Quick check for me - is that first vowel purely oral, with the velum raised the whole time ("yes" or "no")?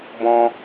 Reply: no